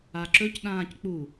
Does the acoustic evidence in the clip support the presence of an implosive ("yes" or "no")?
yes